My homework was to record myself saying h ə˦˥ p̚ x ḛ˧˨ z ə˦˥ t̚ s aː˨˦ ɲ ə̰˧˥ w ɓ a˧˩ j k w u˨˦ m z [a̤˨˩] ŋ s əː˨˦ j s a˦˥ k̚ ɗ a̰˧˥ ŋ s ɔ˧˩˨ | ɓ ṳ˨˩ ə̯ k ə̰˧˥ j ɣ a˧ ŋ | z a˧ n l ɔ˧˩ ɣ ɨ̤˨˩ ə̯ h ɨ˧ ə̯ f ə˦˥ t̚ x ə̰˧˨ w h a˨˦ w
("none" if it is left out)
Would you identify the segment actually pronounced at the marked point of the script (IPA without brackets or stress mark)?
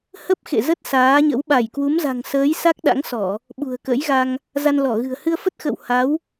a̤˨˩